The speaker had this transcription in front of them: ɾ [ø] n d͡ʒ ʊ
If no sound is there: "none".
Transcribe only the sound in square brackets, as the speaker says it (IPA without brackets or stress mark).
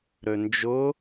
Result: ø